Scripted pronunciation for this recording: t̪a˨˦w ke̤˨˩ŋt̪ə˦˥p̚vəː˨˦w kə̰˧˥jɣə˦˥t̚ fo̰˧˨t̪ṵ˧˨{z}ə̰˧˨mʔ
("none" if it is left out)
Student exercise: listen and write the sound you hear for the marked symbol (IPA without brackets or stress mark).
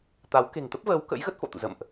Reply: z